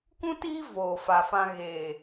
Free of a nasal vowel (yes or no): no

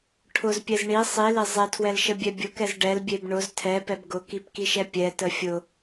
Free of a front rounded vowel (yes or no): yes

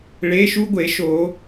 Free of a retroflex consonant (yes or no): no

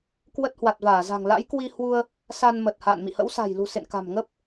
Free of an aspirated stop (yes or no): yes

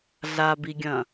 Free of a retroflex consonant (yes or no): yes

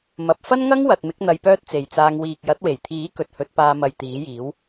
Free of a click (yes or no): yes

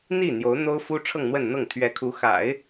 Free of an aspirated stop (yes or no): no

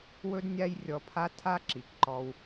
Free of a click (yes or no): no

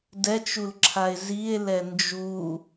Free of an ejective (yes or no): yes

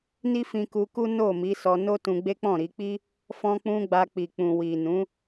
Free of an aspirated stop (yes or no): yes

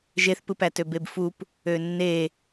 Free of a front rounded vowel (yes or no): no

